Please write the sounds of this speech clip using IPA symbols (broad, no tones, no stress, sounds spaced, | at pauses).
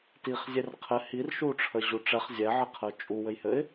t i χ zʲ e r qʰ ɘ h i r ʃ u ʈ͡ʂʰ ə ʑ u ʈ͡ʂ ɛ χ zʲ ɛ ʕ ɘ qʰ ə ʊ̯ t͡ʃʼ u w ɘ j h ɘ ɪ̯